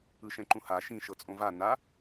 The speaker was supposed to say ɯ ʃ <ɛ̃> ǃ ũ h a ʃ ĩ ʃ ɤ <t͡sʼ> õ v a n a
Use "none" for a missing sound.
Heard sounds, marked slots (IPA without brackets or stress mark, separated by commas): ɛ̃, t͡sʼ